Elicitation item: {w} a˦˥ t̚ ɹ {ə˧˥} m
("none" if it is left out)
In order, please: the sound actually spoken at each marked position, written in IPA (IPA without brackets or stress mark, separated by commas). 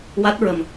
w, ə˧